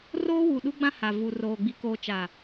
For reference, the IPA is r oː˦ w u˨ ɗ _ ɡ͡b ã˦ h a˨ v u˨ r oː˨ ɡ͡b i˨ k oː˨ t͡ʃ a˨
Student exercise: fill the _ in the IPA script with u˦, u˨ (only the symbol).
u˦